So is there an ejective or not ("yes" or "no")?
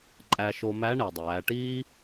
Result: yes